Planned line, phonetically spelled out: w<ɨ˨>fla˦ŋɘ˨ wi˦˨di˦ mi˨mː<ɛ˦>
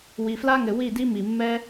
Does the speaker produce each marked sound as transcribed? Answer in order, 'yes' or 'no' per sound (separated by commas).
no, yes